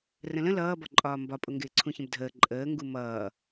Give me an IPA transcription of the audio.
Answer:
r ə̃ l ə̃ l ʌː b ɒ ǃʼ ɒː m b ɒ pʼ ʊ ŋ ɡ ɪː ǀʰ ũ ç ə̃ b dʱ əː ǃʼ əː ŋ ɡ u m ʌː

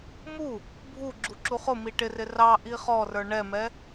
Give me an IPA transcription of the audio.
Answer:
m u | bʱ u ɡ͡ǁ u ǁ u χ ʊ m i ʈ ɪ r ɪ r ɑ ʔ i χ ɔ r ə˞ ɳ ɛ m ɛ

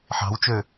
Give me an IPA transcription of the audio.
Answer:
ħ ɑ̤ w t͡ʃ ø

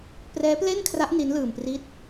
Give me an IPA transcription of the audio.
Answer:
p r ɛː˦˥ p l e˥˩ n kʰ r a˦˥ ʔ n i˦˥ n l ɯː˧ m p r i˥˩ t̚

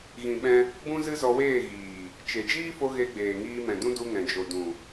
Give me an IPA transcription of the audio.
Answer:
ɣ ĩ˨ ɓ ɛ̃˧ | b ũ˦ z ɨ˦ z ɔ˧ w eː˦˨ ɣ iː˨ | t͡ʃ e˨ d͡ʒ iː˦ f o˧ ɣ e˧ ɡ͡b eː˨ ŋ iː˧ m ɛ̃˨ d ũ˦ d u˧ ŋ ɛ̃˨ d͡ʒ o˨ d ũ˨

